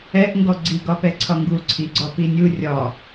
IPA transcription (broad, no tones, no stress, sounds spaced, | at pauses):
ɛ ʔ ŋ ɡ ɔ ɡ͡ǀ i ɡ ɒ p ɛ ǀʰ ɒ ŋ ɡ u ǀʰ i ɡ͡ǀ ɒ p i nʲ u rʲ ɒ